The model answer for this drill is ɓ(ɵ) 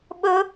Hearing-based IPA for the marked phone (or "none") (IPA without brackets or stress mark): ɵ